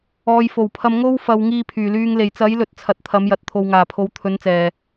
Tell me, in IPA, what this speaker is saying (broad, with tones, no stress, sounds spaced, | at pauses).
ɔː˨ j f o˨˩ w pʰ ɐ˧ m ŋ o˧ w f ɐ˨ w ŋ iː˧ pʰ yː˨˩ l yː˧ ŋ l e˨˩ j t͡s ɐ˨˥ j l ɵ˨ t̚ t͡sʰ ɐ˨˥ t̚ t̪ʰ ɐ˨˥ m j ɐ˨ t̚ t̪ʰ o˨ w ŋ aː˨˩ pʰ o˨˥ w t̪ʰ ɵ˨˥ n t͡s ɛː˨˩